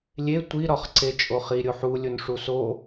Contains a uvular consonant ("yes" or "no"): yes